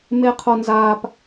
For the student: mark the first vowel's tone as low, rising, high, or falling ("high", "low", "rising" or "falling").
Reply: high